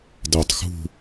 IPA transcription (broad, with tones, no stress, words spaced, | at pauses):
dəː˧˩tˤxṳ˥˧